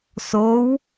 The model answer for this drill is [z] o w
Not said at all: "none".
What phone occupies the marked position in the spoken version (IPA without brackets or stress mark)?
s